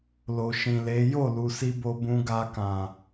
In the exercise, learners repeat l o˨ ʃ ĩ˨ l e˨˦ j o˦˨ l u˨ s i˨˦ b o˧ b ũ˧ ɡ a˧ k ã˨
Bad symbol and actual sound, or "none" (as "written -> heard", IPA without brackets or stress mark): i˨˦ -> i˧